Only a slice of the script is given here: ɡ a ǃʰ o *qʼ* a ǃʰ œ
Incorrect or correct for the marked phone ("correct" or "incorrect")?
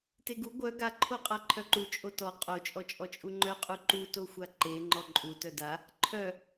correct